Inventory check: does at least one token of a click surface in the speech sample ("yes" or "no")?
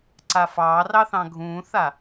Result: yes